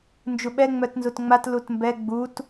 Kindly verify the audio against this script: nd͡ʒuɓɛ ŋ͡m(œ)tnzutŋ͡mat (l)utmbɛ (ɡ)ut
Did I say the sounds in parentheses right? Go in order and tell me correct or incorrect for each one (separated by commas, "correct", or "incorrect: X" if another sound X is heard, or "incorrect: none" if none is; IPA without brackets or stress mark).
correct, correct, incorrect: ɡ͡b